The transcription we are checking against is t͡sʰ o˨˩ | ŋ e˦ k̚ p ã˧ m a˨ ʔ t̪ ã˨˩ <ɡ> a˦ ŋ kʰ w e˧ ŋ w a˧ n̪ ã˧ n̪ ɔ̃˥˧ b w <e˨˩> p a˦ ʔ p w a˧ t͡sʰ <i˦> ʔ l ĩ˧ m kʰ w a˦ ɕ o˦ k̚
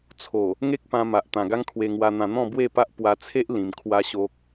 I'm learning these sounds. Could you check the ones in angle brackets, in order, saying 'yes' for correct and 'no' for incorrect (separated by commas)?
yes, no, no